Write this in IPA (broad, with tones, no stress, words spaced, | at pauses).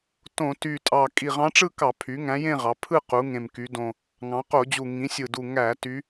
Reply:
tõ˧˩˧ ty˨˩tʼɑ˨˩ kʼi˨˩ʁɑ̃˧˥ʈ͡ʂɯ˥˧kɑ˧˩˧ pʰy˩˥ŋæ̃˧˥jẽ˥˧ʁɑ˩˧ pʰɯ˥˧ qu˩˥ ŋẽ˨˩mky˩˧dõ˨˩ | ŋɑ̃˩˧qo˧˩˧d͡ʑu˨˩ ŋĩ˩˥sʲɯ˨˩du˨˩ ŋæ˧˩˧ ty˧˥